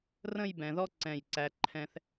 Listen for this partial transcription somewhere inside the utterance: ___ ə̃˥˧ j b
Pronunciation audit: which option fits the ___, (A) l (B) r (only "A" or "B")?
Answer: B